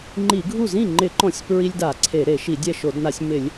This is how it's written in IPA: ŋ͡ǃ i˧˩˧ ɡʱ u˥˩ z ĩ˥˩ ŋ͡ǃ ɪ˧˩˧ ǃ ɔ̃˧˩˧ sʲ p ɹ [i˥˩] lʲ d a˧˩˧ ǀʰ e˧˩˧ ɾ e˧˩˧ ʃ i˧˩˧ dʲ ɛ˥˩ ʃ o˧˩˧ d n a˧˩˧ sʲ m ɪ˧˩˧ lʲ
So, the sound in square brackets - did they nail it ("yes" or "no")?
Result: no